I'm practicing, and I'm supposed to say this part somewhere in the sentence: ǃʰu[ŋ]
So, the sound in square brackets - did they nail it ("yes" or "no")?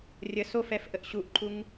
yes